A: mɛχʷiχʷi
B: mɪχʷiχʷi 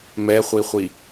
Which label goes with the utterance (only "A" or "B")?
A